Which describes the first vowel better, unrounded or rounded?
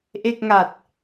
unrounded